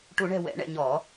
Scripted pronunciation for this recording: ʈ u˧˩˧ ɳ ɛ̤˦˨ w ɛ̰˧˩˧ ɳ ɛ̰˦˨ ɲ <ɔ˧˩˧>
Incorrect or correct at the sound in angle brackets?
correct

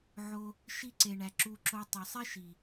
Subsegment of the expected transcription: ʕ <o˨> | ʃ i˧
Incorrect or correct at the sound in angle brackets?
incorrect: o˧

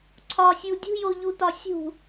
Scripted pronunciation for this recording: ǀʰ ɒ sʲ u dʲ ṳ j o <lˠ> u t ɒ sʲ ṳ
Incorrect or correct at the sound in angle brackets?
incorrect: ʎ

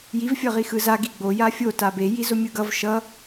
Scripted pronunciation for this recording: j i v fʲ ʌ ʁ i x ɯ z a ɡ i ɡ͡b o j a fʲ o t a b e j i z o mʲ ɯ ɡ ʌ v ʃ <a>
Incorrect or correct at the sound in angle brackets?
incorrect: ʌ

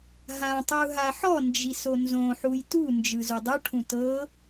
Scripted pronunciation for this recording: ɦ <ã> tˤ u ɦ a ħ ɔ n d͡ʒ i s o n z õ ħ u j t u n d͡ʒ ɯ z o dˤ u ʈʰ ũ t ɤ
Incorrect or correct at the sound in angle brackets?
correct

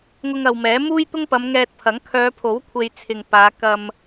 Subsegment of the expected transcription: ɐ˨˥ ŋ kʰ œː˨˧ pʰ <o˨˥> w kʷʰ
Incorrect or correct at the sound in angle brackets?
correct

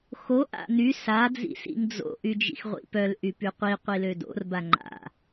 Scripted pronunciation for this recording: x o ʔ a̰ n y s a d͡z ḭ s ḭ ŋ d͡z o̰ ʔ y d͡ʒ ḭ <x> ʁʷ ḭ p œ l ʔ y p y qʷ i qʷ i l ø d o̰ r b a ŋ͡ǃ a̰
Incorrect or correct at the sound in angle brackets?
correct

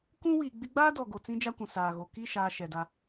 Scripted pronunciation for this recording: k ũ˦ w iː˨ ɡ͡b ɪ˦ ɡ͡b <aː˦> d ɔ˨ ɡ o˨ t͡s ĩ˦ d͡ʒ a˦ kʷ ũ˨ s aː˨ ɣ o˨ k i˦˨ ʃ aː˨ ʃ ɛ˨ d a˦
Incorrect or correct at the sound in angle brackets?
correct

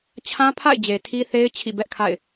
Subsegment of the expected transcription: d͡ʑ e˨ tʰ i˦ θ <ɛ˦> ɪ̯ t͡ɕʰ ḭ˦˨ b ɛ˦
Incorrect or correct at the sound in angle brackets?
incorrect: e˦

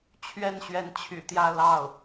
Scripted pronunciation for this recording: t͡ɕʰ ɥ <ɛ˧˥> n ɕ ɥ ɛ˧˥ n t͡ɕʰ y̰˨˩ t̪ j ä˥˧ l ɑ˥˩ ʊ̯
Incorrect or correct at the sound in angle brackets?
incorrect: ɛ˥˩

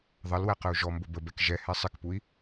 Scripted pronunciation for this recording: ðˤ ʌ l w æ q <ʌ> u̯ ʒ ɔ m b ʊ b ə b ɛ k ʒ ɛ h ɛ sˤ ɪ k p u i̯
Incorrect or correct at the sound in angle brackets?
incorrect: ə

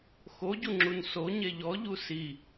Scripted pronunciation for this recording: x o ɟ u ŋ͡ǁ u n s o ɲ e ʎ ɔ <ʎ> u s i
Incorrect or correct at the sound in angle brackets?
correct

